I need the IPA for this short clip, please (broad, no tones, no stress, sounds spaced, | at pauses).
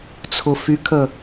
t͡sʰ ʊ f y kʰ ə